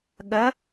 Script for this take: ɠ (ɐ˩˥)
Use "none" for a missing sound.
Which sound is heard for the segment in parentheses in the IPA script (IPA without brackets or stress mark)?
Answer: ɐ˩˥